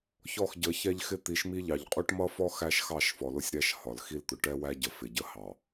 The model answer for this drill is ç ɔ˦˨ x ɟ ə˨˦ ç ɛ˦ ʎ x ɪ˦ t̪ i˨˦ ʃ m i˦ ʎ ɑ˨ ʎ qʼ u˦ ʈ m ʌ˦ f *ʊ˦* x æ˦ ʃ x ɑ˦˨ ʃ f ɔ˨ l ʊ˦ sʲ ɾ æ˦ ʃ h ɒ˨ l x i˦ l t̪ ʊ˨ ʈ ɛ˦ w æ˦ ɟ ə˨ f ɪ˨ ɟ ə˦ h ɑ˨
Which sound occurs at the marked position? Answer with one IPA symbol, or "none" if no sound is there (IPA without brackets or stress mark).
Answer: ɔ˦